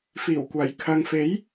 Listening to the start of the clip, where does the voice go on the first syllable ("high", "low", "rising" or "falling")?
low